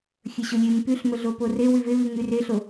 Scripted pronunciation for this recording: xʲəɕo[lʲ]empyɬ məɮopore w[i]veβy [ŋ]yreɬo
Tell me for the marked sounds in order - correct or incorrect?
correct, incorrect: y, correct

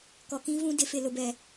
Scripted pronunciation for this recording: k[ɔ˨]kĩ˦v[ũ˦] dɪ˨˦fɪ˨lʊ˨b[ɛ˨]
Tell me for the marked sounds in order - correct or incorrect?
correct, correct, correct

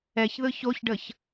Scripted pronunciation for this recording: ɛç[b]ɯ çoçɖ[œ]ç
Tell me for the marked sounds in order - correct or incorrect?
incorrect: ð, incorrect: ə

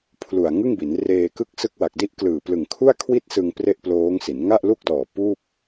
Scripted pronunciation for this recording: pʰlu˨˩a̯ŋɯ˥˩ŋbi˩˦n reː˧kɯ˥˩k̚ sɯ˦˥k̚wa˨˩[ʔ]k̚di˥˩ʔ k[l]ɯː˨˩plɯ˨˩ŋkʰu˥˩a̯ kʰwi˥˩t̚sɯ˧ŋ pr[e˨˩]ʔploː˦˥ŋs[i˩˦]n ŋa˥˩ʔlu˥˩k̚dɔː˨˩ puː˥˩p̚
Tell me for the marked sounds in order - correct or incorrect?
incorrect: none, correct, incorrect: e˥˩, correct

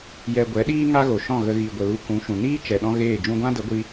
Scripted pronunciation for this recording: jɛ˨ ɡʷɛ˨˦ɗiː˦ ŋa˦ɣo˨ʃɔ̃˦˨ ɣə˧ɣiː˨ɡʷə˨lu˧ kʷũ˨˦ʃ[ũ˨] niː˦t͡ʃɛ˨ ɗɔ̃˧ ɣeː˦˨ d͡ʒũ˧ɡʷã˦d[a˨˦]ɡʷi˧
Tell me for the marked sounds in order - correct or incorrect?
correct, incorrect: ə˨˦

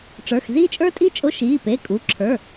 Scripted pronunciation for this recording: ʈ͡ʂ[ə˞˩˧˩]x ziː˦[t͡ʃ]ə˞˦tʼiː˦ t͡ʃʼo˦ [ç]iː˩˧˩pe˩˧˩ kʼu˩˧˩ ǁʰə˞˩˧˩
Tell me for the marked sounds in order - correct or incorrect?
correct, incorrect: t͡ʃʼ, incorrect: ʃ

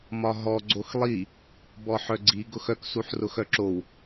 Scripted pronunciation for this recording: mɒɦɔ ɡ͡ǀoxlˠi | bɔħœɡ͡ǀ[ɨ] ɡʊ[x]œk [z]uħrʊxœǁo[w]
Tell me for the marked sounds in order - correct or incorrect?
incorrect: i, correct, incorrect: s, correct

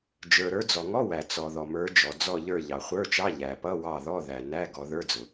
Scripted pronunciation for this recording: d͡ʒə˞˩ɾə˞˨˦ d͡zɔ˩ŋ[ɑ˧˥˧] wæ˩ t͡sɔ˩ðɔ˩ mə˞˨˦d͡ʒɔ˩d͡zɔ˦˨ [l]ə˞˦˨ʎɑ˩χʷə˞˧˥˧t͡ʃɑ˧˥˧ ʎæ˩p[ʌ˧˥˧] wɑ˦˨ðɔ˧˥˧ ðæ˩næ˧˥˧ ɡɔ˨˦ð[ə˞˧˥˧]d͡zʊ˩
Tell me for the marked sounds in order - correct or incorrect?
incorrect: ɔ˧˥˧, incorrect: ʎ, correct, correct

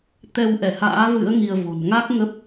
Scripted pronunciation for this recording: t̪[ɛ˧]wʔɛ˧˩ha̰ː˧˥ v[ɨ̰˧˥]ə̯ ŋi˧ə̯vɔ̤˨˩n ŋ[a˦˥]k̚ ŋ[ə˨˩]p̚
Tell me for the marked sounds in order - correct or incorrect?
correct, correct, correct, incorrect: ə˦˥

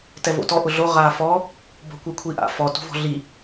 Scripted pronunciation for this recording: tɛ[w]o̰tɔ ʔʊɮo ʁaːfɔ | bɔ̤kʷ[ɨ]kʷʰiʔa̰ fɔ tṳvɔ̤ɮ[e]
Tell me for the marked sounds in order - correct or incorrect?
incorrect: v, incorrect: i, incorrect: i

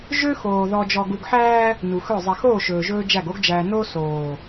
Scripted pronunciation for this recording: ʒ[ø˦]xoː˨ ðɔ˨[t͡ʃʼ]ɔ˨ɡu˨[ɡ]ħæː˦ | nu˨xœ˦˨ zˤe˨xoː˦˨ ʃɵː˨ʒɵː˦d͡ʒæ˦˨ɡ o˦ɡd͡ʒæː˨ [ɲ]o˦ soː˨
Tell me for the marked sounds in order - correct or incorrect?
correct, incorrect: d͡ʒ, correct, incorrect: n

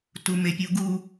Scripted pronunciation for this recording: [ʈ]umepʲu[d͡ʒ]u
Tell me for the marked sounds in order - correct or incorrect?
incorrect: t, incorrect: ɡ

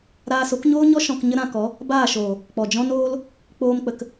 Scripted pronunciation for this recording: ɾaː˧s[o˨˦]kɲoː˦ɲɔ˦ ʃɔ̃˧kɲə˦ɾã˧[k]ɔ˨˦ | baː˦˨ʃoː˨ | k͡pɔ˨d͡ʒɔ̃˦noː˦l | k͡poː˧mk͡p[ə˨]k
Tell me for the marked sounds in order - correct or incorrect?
correct, correct, correct

